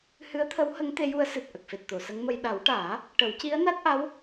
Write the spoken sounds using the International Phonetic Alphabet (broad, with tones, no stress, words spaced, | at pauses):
hɨ˧˥ə̯t̪ʰə˧˥whə˧˥ŋ t̪e˧˥ju˧˥ə̯ sɨ˨˩t̚ ʔə˨˩k̚fe˨˩t̚t̪o˨˩˨ sə˧˥ŋmə˧j ɗa˨˩˦wʈaː˨˩˦ | ʈə˨˩˦wci˧˥ə̯na˦˥t̚ʔa˧˥w